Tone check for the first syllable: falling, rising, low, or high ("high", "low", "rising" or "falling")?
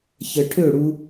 low